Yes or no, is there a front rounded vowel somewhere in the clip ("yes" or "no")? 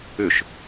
yes